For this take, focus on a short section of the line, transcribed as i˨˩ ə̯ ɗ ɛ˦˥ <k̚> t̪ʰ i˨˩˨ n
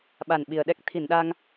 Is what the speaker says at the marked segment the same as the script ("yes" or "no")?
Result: yes